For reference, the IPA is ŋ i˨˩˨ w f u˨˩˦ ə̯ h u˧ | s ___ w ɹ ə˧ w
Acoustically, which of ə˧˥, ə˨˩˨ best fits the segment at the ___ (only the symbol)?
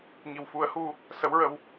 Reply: ə˧˥